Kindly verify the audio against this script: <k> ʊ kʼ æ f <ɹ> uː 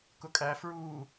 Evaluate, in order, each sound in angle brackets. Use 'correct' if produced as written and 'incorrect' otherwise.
correct, correct

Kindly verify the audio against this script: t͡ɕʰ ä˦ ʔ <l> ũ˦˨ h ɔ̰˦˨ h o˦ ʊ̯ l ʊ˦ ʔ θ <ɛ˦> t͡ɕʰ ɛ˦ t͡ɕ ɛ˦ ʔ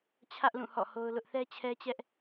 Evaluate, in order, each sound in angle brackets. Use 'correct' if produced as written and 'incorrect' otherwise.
correct, correct

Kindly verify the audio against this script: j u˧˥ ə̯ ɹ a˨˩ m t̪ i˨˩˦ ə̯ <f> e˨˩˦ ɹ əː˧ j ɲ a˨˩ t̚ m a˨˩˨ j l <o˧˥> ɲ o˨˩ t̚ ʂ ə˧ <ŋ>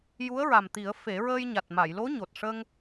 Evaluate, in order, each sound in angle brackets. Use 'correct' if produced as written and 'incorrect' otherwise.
correct, correct, correct

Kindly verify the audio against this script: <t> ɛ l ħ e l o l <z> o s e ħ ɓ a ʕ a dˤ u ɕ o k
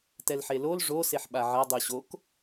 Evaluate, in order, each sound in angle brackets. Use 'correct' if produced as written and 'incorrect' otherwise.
correct, incorrect

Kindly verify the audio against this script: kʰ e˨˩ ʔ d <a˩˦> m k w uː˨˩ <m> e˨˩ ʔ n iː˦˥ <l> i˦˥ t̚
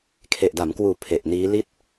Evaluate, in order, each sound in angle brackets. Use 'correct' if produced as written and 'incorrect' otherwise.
correct, incorrect, correct

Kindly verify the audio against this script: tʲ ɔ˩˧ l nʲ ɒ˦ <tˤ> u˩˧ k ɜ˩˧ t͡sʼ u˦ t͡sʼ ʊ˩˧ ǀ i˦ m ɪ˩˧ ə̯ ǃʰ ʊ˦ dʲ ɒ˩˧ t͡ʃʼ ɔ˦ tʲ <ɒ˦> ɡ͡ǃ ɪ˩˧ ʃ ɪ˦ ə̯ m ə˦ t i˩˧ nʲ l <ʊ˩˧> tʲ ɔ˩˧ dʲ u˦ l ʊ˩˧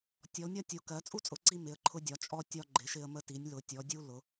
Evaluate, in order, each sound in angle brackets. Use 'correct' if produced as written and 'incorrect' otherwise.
incorrect, correct, correct

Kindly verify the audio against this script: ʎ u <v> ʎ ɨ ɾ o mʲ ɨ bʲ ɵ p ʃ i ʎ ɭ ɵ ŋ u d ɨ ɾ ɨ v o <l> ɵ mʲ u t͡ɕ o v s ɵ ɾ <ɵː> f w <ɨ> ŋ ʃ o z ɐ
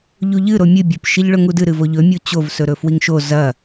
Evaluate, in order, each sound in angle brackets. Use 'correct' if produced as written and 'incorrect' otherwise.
incorrect, incorrect, incorrect, incorrect

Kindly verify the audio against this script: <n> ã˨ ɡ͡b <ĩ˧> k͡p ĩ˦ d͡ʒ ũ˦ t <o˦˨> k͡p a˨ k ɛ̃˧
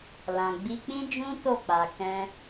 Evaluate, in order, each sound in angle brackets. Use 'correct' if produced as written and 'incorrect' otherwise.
incorrect, incorrect, correct

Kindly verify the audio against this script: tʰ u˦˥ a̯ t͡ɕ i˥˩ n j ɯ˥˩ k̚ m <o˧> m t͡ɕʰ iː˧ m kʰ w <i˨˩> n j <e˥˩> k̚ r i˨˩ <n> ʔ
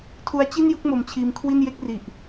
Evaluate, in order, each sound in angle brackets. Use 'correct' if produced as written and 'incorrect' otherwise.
correct, incorrect, correct, incorrect

